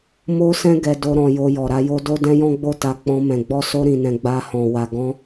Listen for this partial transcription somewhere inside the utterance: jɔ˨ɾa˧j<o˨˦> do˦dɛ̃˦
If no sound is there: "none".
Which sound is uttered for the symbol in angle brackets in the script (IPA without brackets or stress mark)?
o˦